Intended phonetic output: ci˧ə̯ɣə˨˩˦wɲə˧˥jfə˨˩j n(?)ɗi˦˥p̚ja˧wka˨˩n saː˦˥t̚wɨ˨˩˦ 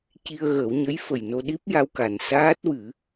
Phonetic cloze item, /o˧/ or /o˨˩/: o˧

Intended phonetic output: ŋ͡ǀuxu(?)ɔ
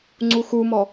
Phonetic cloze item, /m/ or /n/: m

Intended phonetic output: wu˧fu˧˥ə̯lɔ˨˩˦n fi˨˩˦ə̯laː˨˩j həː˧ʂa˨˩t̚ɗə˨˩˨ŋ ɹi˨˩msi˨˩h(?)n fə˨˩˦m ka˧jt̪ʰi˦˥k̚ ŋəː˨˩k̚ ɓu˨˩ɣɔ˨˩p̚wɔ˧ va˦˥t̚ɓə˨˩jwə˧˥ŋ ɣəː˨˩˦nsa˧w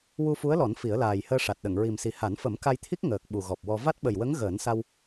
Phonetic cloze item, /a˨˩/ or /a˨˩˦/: a˨˩˦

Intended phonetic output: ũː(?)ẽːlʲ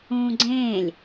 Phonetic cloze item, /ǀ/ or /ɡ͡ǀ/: ɡ͡ǀ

